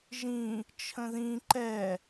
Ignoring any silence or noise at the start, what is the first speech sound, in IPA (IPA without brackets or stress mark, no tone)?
ʒ